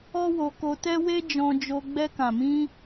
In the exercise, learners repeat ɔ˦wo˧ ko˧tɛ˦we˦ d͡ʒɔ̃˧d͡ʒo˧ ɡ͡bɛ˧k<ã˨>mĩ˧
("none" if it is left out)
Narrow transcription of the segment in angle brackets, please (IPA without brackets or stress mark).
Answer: ã˨